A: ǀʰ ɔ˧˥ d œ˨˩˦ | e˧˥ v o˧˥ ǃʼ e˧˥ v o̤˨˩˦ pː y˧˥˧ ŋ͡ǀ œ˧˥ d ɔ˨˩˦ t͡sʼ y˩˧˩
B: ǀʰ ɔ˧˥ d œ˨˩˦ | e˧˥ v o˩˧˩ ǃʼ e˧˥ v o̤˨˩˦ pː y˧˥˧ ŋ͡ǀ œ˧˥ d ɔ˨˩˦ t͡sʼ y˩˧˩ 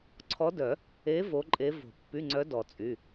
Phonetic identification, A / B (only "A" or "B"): A